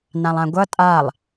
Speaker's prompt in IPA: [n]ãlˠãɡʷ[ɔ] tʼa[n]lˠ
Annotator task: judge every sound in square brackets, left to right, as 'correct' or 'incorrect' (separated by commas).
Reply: correct, incorrect, incorrect